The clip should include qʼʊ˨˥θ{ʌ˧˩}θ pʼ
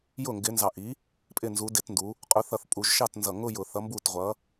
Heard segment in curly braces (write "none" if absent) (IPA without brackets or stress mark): ʌ˧˩